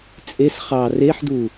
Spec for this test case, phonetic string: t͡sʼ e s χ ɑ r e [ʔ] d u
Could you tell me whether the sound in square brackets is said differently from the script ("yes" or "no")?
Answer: yes